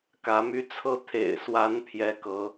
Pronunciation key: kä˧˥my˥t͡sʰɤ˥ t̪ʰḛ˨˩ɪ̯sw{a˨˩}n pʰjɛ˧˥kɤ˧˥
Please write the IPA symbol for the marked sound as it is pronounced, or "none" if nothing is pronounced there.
a˧˥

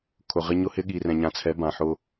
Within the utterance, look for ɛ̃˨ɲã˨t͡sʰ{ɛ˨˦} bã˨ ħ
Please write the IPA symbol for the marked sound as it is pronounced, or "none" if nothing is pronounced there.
ɛ˨˦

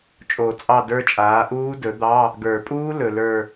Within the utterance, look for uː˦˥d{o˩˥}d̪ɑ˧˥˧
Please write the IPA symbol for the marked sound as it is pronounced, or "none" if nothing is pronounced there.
ɵ˩˥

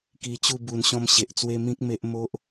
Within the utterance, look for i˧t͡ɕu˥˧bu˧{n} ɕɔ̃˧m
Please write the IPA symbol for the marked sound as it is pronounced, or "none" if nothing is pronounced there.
n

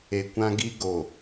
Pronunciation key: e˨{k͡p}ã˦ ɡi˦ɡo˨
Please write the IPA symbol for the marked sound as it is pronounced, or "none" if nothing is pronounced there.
kʷ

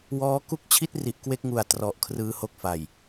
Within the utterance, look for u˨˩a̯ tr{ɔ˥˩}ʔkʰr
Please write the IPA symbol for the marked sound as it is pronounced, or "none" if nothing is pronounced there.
ɔ˨˩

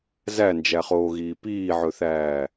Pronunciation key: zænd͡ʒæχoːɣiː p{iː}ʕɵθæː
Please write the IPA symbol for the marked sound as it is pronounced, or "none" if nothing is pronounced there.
iː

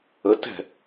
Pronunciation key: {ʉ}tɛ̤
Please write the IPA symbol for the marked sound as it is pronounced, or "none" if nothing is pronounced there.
ə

